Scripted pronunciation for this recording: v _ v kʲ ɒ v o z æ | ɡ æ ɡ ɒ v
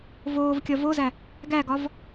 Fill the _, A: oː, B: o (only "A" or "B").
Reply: A